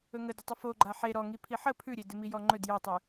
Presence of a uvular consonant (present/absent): absent